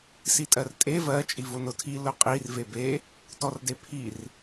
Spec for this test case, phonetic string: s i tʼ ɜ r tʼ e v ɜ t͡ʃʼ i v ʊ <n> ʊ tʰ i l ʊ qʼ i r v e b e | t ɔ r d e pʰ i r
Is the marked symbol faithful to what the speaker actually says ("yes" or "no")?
yes